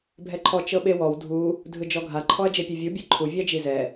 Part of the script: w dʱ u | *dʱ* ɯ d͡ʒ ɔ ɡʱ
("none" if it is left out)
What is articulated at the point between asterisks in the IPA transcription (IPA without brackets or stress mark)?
dʱ